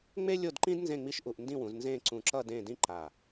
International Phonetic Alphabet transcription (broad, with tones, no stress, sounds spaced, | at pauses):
ŋ͡m e˥ lʲ o˥˧ d ǃ ĩ˥ d n z ẽ˥˧ ŋ͡m i˥˧ ʃ ʔ u˧ ʔ n d ĩ˥˧ w ũ˩˧ z n z ẽ˥˧ ǀ ũ˧˩ ǁ ʌ˥˧ d ẽ˥˧ d ĩ˥ ǃ a˧˩